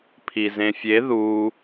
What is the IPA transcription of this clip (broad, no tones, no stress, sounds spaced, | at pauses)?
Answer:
pʰ i z ẽ fʲ e ð u